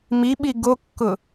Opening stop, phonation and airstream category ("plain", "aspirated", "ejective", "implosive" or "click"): implosive